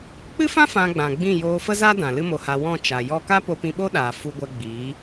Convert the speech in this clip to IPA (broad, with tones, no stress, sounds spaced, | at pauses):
k͡p ɨ˦ f ã˦ f ã˧ ɡ͡b ã˨ ɡ͡b ĩ˦˨ j oː˧ f ə˦ z a˦ d ã˨ l ɨ˦ m o˧ h a˧ w ɔ̃˦˨ t͡ʃ a˨ j ɔ˦ k a˦ p o˧ p ĩ˧ ɓ o˦ ɗ aː˨ f u˧ ɡʷ ɛ˧ ɡ͡b iː˨˦